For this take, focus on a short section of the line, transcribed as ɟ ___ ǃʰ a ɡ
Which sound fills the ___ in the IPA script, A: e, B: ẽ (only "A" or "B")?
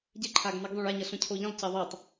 A